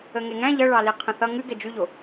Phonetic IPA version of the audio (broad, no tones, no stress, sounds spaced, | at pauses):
ə ŋ e ŋ æ̃ ʎ ʌ ɭ ɑ l i qʰ ə̃ θ ʌ ŋ ʉ ɡ ɛ d͡ʒ ʉ ʎ o